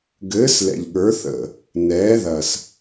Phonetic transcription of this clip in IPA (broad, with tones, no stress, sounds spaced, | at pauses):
ɡ ɘː˩˥ s l ɛ̰˨˩ ʎ ɠ ə˞˩˥ θ ə̰˨˩ | n ɛː˩˥ ð ɐ˨˩ s